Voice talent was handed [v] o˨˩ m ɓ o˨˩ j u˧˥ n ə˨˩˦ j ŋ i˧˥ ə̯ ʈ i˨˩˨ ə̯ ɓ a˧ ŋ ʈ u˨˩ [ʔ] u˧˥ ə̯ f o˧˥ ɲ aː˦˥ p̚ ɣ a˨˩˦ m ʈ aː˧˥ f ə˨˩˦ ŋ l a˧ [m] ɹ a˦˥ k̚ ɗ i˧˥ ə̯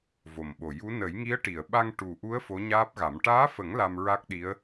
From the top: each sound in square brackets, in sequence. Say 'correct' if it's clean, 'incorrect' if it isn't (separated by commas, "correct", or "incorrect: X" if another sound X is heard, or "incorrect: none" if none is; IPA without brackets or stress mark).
correct, correct, correct